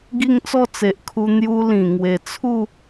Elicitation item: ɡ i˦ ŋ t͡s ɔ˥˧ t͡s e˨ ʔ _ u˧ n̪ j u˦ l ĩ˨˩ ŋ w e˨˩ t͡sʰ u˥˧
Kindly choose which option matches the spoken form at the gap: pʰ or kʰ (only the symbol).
kʰ